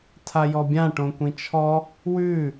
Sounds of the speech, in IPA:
tʰ a j ɔ bʲ ã ʈ õ kʷ ĩ t͡ʃʰ ɔ | w ʉ

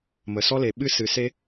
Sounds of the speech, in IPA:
m ə˩ s ɔ˥ l e˩ ɓ ɨ˥ s ɨ˩ s e˥

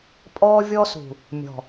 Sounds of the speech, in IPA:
pʼ ɔː˦ vʲ ɔ˦ s ṳ˨ | mʲ ɔ̤˨

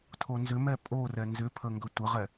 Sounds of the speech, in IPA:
tʰ o n z ʏ m ɛ pʼ o r ɛ n z ʏ pʰ ə ŋ ɡ ɵ tʷ ə ʁ ɛ

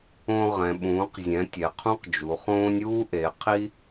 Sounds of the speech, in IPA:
õ˦ ʁ ɛ̃˩˧ ɓ ũː˩˧ q zʲ ɛ̃˩˧ tʲ ɛ˩˧ qʰ ũ˦ q d͡ʒ u˩˧ χ õː˦ nʲ uː˦ ʔ e˩˧ qʰ i˦

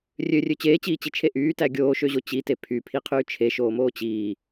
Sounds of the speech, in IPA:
rʲ ø rʲ ø t͡ɕ eː t͡ɕ iː t͡ɕ i t͡ʃʰ e ʔ yː t æ ɡʲ oː ʃ ø ʑ o t͡ɕ i t e pʰ y pʰ i qʰ yː t͡ʃʰ e ʃ oː m oː t͡ɕ iː

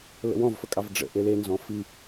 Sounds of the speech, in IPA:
l ə̰ w ɔ̃ v f ə kʼ ɑ v ɖ͡ʐ ə̰ ʔ e l e n z ɔ̃ f i

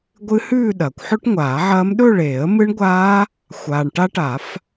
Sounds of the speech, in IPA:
ɡʷ ɨ˦˥ h ʉː˥˧ ɗ ɐː˩ kʷ ħ ɵ˦˥ ʈ ŋʷ aː˨˩˦ ʕ ɐː˦˥ m ɗ ɵ˥˧ ɭ eː˨˩˦ ə̯ m ɨ˦˥ ɳ ɡʷ aː˦˥ | xʷ aː˩ ɳ ʈ a˦˥ ʈ a˨˩˦ f

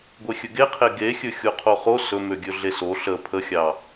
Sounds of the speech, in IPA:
ɡʷ e xʲ ɵ ɡ e qʰ e ɡ e xʲ ɵ xʲ o qʰ o χ o s ɵ m ø ɡʲ ɵ ɮ e s o ɬ ə pʰ ə xʲ ɑ

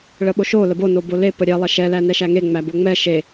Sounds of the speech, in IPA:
ɭ ə ɓ o ʃ o l ə b o n o b o l e p ə ɾʲ ɛ lˠ ɛ ʃ ɛ l æ n ɛ ʃ æ ŋ e ŋ͡m æ b o ŋ͡m ɛ ʃ e

